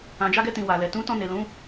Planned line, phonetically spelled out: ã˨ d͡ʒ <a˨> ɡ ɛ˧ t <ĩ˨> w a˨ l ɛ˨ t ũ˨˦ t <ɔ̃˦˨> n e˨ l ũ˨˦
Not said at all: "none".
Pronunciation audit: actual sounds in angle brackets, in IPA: a˧, ĩ˨, ɔ̃˧

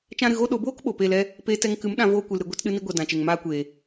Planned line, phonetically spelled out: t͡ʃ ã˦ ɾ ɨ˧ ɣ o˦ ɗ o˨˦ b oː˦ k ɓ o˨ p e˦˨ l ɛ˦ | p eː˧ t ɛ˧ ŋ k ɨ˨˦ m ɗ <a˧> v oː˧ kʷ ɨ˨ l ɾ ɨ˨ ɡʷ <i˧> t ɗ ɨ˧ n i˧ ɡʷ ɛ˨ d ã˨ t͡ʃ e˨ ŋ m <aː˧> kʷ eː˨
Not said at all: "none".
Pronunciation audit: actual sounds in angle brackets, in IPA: ã˧, e˧, aː˧

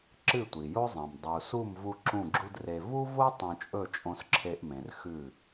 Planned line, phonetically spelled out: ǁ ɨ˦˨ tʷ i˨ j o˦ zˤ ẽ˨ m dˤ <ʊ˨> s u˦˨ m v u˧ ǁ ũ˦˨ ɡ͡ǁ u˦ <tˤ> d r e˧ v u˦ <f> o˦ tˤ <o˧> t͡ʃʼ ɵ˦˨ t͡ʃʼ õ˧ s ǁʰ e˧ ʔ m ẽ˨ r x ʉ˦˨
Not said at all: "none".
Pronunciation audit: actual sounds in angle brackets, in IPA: u˨, none, v, õ˧

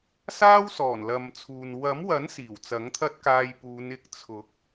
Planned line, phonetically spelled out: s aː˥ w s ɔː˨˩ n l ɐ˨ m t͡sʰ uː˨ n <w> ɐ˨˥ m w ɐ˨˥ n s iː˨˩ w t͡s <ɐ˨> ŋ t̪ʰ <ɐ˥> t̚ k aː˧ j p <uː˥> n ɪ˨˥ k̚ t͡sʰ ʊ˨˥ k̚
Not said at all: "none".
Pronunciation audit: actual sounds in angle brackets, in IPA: w, ɐ˨˥, ɐ˥, uː˨˧

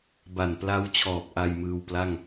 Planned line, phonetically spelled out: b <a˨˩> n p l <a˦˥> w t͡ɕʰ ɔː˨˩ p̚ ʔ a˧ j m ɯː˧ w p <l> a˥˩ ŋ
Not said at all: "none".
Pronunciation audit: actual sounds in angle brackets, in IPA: a˨˩, a˦˥, l

